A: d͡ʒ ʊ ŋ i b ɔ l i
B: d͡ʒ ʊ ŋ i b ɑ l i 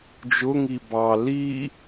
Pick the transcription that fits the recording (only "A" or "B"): B